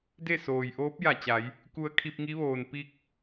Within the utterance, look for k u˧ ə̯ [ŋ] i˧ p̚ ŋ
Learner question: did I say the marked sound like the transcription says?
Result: no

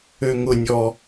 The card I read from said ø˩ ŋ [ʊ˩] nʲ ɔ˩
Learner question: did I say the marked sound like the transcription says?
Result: yes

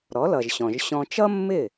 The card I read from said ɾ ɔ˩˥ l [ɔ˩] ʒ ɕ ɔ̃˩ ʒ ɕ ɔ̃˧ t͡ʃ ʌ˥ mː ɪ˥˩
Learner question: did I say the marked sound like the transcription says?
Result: no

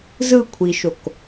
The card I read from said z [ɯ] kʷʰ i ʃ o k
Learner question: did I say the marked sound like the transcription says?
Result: yes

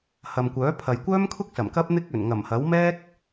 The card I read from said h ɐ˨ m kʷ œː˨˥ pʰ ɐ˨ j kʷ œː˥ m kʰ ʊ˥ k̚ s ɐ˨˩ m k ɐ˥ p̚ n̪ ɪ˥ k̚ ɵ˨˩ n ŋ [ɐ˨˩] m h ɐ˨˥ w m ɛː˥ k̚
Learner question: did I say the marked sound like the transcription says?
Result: yes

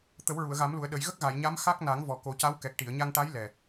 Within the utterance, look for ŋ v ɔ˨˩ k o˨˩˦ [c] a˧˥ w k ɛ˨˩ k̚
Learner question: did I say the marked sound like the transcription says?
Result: yes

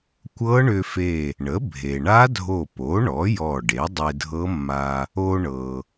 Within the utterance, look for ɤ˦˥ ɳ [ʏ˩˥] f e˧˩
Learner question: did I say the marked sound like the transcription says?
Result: no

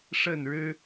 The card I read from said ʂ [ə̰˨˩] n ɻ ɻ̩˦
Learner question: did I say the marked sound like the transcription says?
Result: no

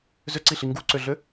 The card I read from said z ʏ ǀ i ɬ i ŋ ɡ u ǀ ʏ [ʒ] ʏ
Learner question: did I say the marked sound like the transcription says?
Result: no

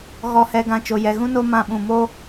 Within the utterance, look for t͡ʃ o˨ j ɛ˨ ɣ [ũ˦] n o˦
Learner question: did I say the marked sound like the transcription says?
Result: yes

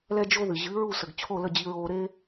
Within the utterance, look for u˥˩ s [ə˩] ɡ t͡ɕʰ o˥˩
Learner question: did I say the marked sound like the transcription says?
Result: yes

